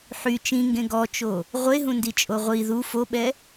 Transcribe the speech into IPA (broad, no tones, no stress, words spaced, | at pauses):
ħy t͡ʃĩŋɡẽ ɡɔt͡ʃo | ʁʷeɦũndit͡ʃʼo ʁʷi ðu foɓɛ